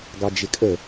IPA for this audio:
ɡ ɑ d͡ʒ ɪ kʼ ə

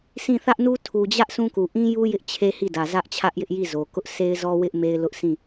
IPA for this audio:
sʰ ĩ˦˨ θ ä˦ ʔ n u˦ tʰ u˨ d͡ʑ ä˦ ʔ sʰ ũ˦ k u˨ ʔ ĩ˦ j u˦ j ɪ˦ ʔ t͡ɕʰ e˦ h i˦˨ d ä˨ z ä˦ ʔ t͡ɕʰ ä˦ ʔ j ɪ˦ ʔ j i˦˨ z o˨ k ʊ˦ ʔ sʰ e˦ ɪ̯ z ɔ˦ w ɪ˦ ʔ m e˦ ɪ̯ l ʊ˦ ʔ sʰ ĩ˦˨

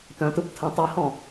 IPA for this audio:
t œ̃ t ɯ p tʰ ə̃ tˤ e h ɔ̃

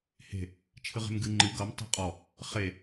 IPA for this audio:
h e̤ | t͡ʃʰ ɨ ʁ e̤ m ɡ ɨ ŋ͡ǃ ɨ ɡ ʌ m tˤ e̤ qʼ ɔ | χ e

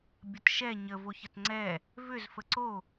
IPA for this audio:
bʲ ə t ʃ ɛ ɲ ə v o ç ə t ŋ͡ǀ ɛ | v ʏ z f ə ǀ o

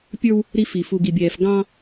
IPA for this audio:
pʲ ə˞˦ w | ɾ i˦ f i˨ f u˨ ɡ i˨ bʲ ɛː˨ f ɡ ɑ̃˦

